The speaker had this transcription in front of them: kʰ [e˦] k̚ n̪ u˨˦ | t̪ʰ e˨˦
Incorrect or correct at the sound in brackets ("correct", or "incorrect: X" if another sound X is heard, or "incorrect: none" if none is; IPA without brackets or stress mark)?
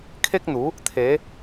correct